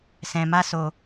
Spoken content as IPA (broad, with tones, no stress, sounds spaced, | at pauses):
s ɛ̃˧ m a˦ s o˧